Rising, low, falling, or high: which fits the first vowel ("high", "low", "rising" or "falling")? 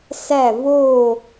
falling